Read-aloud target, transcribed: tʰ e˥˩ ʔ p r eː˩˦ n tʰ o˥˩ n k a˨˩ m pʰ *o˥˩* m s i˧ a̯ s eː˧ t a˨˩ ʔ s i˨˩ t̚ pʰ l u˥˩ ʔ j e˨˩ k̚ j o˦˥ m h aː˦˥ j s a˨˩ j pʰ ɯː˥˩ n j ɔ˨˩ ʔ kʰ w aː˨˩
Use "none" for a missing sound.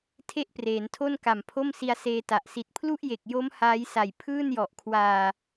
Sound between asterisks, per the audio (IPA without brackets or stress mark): o˥˩